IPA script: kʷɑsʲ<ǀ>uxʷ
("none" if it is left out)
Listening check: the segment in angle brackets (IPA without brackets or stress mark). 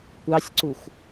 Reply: ǀ